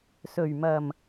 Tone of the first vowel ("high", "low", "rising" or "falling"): low